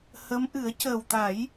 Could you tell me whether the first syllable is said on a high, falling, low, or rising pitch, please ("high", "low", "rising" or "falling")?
rising